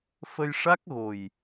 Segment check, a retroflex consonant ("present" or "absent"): present